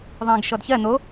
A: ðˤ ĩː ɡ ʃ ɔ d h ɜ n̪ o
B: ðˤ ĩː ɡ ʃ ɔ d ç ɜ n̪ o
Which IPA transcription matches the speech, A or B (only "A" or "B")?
B